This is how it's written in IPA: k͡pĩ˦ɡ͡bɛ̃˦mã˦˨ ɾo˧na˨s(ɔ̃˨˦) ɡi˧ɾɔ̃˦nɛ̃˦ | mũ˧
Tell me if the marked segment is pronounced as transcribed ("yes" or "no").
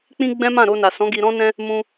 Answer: yes